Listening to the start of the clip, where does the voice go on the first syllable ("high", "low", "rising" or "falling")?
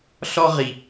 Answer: high